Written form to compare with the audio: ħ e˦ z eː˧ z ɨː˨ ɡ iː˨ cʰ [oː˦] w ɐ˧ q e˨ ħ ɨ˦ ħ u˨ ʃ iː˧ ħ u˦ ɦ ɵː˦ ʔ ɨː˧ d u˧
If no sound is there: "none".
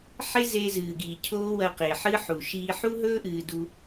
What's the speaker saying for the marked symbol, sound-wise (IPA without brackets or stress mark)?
oː˦